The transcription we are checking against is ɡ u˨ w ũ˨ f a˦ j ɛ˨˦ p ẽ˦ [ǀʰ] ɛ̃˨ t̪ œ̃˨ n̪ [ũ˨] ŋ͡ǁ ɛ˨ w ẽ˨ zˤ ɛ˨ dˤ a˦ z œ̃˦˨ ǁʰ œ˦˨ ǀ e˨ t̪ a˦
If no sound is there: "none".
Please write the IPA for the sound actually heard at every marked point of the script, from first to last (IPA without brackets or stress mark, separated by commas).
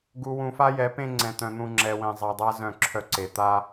ŋ͡ǀ, ũ˨